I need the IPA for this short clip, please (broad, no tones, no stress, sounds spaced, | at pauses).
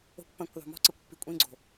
o̤ kʷ p ɐ̃ kʷ ðˤ o̤ m ɔ̤ ǀ ə kʷ pː i kʷʼ ĩ ɡ͡ǀ o̤